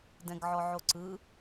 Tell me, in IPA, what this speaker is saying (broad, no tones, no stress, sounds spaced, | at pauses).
d ɛ̃ ɡ ʕ ɔ ʕ o ǀ ɯ